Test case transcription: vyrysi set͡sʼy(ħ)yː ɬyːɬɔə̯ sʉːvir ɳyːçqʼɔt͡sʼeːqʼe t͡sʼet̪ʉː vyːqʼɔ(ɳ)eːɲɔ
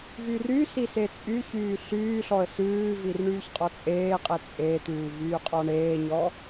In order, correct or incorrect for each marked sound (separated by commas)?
incorrect, correct